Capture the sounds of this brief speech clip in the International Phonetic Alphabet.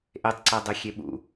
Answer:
ʔ e tˤ ǀ ɜ dˤ e xʲ e ɓ ṵ

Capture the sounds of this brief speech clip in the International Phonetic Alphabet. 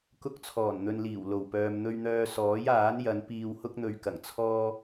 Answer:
k ʊ˧ k̚ t͡sʰ ɔː˨˩ n n̪ ɵ˨ n l iː˨˩ w l o˨˩ w p œː˨ m n̪ ɵ˧ ɥ n̪ œː˧ s ɔː˨˥ j aː˨˥ n j ɐ˨˧ n p iː˨ w h ʊ˧ k̚ n̪ ɵ˨ ɥ k ɐ˨˩ ŋ t͡sʰ ɔː˧

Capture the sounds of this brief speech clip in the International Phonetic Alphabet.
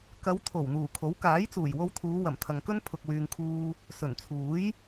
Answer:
k ɐ˨˧ w t̪ʰ o˨˩ w n̪ uː˨˩ kʰ o˨˥ w k aː˨˥ j t͡s uː˨˩ j w o˧ w t̪ʰ uː˨˧ w ɐ˨˩ m t̪ʰ ɐ˨ ŋ k ɵ˥ n pʰ ʊ˨ k̚ w yː˨ ŋ kʰ uː˧ | s ɵ˨˩ n t͡sʰ uː˨˥ j

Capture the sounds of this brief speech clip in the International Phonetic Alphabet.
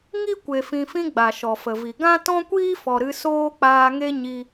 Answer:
ŋ i˦ kʷ e˨ f ĩ˨ f ĩ˧ ɡ͡b a˨ ʃ ɔ˨ f ə˨ v i˨ ɡ ã˦ t ɔ̃˦ kʷ iː˦ f ɔ˨ ɾ ɨ˧ s oː˦ k͡p aː˧ ŋ e˦ ɲ i˧

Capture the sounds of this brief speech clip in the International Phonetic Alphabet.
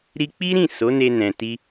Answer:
ɾ i˧ k͡p i˦ ɾ ĩ˦˨ s o˨˦ n e˧ n ɛ̃˨ t i˧

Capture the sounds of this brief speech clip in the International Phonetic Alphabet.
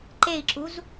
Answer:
ǃ e i̯ ǁ u z

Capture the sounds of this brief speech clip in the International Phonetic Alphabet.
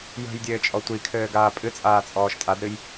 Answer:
j ə̤ j dʲ ɘː t͡ʃʼ ɔ tʷ i kʰ ɘː ɡ aː pʼ ɨ t͡sʼ aː t͡sʼ ɔː ʃ tʼ a d ɾ ɨ j

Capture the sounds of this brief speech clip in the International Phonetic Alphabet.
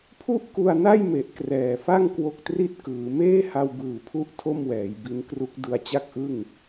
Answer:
pʰ u˥˩ ʔ k u˧ a̯ n a˥˩ j m e˨˩ ʔ k r ɛː˨˩ f a˥˩ ŋ k w o˦˥ k̚ t r i˥˩ t̚ k ɯː˩˦ m eː˥˩ h a˧ w b ɯː˨˩ pʰ u˦˥ ʔ tʰ o˥˩ m w ɛː˩˦ j b i˦˥ n k r u˦˥ k̚ d u˦˥ a̯ t͡ɕ a˥˩ k̚ ʔ ɯ˥˩ ŋ

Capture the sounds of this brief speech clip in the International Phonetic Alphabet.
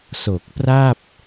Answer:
s o˨˩ k̚ p r a˥˩ p̚

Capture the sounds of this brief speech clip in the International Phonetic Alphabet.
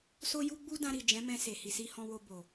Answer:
s o˧ j u˧ ɡ͡b u˦ d ã˧ ɾ i˨ d͡ʒ ɛ̃˨˦ m ɛ̃˧ s e˨ h i˨ s i˧ h ɔ̃˧ w o˧ b o˨

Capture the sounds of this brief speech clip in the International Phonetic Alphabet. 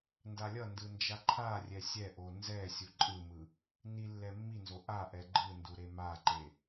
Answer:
n d a lʲ ʌ n d ɯ n d͡ʒ a ǃʰ a rʲ ɛ sʲ ɛ ʔ o n z ɛ sʲ u ǃʼ ɯ m ɯ | n i lː ɛ mː i n z o ʔ a ʔ ɛ ɡ͡ǃ ɯ n d u ɾ e m a ǃ e

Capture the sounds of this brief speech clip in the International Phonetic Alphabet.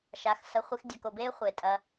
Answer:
ʃ a˧ x s ɐ˧ χʷ i˧ x dʲ œ˧ k o˧ b eː˦ χʷ e˨ tʼ ɐ˧

